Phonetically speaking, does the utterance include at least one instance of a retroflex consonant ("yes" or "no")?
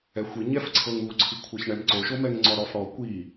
yes